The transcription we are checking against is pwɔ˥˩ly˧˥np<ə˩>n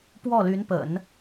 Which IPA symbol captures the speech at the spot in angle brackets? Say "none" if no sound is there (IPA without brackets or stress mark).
ə̰˨˩˦